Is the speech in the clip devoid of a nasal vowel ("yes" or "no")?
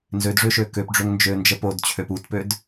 yes